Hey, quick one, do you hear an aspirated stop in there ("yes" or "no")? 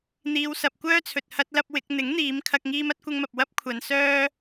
yes